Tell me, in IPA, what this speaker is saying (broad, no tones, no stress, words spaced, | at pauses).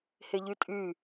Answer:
heʎytʼy